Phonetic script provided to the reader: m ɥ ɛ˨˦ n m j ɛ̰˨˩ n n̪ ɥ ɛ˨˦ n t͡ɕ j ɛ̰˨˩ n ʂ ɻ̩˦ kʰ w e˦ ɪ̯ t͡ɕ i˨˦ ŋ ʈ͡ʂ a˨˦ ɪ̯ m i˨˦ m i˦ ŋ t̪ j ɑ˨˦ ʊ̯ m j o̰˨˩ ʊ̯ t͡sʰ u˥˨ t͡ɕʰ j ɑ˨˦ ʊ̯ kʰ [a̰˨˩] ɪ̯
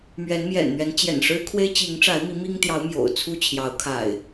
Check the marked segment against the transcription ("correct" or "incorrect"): correct